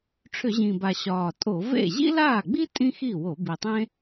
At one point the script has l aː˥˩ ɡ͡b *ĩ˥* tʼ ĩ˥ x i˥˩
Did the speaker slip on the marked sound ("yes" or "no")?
yes